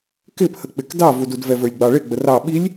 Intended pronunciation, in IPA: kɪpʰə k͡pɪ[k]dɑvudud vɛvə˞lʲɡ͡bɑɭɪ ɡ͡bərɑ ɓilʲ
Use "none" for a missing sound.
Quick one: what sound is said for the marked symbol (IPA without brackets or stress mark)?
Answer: k